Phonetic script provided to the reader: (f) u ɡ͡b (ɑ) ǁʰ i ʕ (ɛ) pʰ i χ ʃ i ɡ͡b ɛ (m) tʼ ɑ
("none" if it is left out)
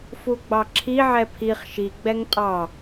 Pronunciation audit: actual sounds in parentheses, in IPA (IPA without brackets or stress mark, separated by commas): f, ɑ, ɛ, ŋ